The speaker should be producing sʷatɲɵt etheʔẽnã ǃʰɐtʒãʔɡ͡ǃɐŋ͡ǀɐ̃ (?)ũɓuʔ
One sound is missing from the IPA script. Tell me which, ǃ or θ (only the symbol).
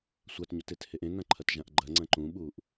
ǃ